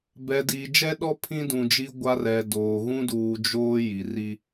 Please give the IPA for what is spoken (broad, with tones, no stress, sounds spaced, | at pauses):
b ɛ˨ d iː˨ d͡ʒ ɛ˦ ɗ ɔ˦ pʰ ĩ˦ d ũ˨ d͡ʒ i˦ ɡʷ a˦ r ɛ˨ d oː˨ ɣ ũ˦ d uː˨ d͡ʒ oː˦ j i˨ r i˦